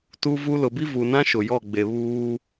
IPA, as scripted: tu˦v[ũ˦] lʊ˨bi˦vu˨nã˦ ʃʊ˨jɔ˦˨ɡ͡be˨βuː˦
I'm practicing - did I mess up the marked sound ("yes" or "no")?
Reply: yes